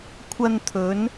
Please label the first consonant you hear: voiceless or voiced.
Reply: voiceless